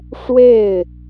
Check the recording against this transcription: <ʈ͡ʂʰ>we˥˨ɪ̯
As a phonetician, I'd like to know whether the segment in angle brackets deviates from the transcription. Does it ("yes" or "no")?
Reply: yes